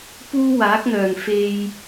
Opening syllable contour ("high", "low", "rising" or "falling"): high